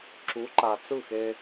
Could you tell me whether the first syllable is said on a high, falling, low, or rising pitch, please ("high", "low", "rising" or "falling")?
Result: rising